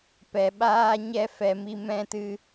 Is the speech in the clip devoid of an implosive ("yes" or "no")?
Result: no